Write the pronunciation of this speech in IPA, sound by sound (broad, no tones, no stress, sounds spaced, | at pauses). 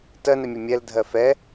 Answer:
t ɜ n ɛ mʲ ɜ mʲ ɛ l dʱ ɜ f ɛ